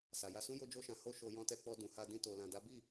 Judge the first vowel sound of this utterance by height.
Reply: low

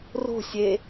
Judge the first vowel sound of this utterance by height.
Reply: mid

